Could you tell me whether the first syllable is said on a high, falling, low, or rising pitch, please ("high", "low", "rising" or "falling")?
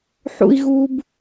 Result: high